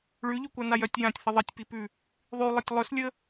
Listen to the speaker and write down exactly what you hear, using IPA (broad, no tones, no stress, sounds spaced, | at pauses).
ɭ ʉ ʎ ʉ kʷ a n a j œ tʲ j ã tʲ θ ə ðˤ ə tʲ p i p ʉ | ðˤ ʉ lˠ i tʲ lˠ œ s lʲ ə